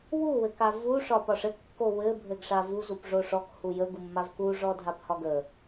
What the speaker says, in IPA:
w u w ɘ k a v u ʂ ɒ p ɒ ʂ ɘ kː o w ɘ bʱ ɘ ɡ ʂ a v u z u p ʐ o ʂ ɔ k h u j ə ɡ u mː a v k u ʐ ɔ dʱ a p h ɒ ɡ ə

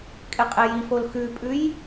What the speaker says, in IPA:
kʼ ɪ qʼ e j i f o l x ʉ pʼ ʉ j

